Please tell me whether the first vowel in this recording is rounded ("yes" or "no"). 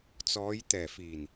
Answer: yes